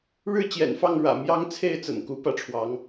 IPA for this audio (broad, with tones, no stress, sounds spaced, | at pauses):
ɻ ɻ̩˥˨ t͡ɕ j ɛ̰˨˩ n f ɑ˥˨ ŋ ɻ ä̰˨˩ m j ɑ˦ ŋ t͡sʰ e˥˨ ɪ̯ t͡s ə̰˨˩ n k u˨˦ p ä˥˨ ʈ͡ʂʰ w ɑ˨˦ ŋ